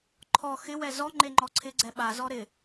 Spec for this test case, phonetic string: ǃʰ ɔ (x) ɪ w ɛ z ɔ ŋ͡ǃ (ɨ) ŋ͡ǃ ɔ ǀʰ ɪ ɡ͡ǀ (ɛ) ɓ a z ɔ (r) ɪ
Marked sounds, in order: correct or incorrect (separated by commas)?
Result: correct, incorrect, correct, incorrect